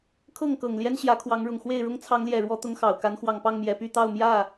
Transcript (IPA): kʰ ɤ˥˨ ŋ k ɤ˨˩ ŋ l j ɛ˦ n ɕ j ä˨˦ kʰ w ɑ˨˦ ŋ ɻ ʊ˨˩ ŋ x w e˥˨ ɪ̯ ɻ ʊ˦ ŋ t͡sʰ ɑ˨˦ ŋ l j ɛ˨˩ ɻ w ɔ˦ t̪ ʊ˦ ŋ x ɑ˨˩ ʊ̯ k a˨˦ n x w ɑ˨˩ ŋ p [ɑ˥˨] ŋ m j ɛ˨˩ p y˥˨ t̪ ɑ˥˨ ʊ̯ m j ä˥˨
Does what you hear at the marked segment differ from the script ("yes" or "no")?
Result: no